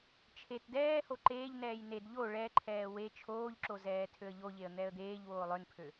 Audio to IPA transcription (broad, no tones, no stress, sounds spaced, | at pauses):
t͡ʃʰ e t d ɛː h o ǃ eː ʎ n ɛː j n e d ʎ o ɭ ɛ ǃʰ ɛː w e t͡ʃʰ oː ʎ ǁ o z ɛː tʰ ø ə̯ ʎ o ʎ e ə̯ n̪ ɛ ə̯ d̪ eː ʎ w oː lˠ ø n pʰ ø